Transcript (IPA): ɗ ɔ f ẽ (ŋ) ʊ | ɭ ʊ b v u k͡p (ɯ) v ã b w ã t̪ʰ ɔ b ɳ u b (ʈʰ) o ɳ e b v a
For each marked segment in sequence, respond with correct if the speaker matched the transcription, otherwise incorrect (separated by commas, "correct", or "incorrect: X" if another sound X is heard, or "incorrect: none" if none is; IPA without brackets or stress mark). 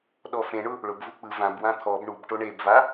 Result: incorrect: ɳ, correct, incorrect: ʈ